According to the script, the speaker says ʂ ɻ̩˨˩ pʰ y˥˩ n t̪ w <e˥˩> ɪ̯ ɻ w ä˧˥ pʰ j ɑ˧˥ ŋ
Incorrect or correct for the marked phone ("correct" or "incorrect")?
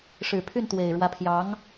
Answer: incorrect